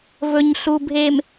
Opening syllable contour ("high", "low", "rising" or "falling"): low